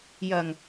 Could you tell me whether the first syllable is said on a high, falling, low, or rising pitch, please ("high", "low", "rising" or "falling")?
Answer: low